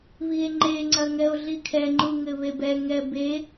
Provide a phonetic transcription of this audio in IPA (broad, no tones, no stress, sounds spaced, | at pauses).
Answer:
β i e̯ ŋ͡ǃ e ŋ͡ǀ ɐ ŋ ɛ o̯ ɮ i kʰ ɛ ŋ͡ǃ u ŋ ɘ β e b ɛ ŋ ɛ b e